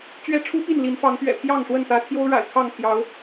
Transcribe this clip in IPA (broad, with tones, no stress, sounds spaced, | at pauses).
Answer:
t͡ɕ ɥ ɛ˦ ʈ͡ʂʰ u˦ p i˥˨ n l i˨˦ n f ɑ˨˦ ŋ p ɥ ɛ̰˨˩ pʰ j ɑ˥˨ ŋ ʂ w ə˥˨ n t̪ ä˨˦ t̪ʰ j o˦ ʊ̯ ɻ a̰˨˩ ɪ̯ kʰ ɑ˥˨ ŋ pʰ j ɑ˨˦ ʊ̯